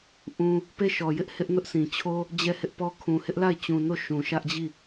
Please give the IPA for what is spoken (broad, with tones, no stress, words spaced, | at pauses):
ʔũ˦ | pe˦˨ʃɔ˨jɪ˦ʔ hɪ˦ʔnʊ˦ʔsʰĩ˨t͡ɕʰo˦ | d͡ʑɛ˦˨hɪ˦ʔpɔ˦ kʰũ˨hɪ˦ʔla˦˨ɪ̯ t͡ɕũ˨no˦˨ ʃũ˨ʃä˦ʔd͡ʑi˦˨